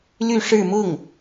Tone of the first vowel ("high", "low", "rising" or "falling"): falling